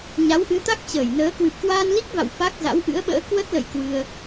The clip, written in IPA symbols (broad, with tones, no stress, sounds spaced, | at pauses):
ɲ a˨˦ w ʔ ɨ˨˦ t̪ a˦˥ k̚ t͡ɕ əː˧˩ j n əː˨˦ k w ɨ˨˩ p̚ k w aː˧ n l i˦˥ k̚ v a̰˧˨ w f a˦˥ k̚ z a̰˧˥ w ʔ ɨ̰˧˥ ə̯ ɓ ə̰ː˧˥ k w ə˦˥ t̚ l ə̰˧˨ j k w ɨ˧ ə̯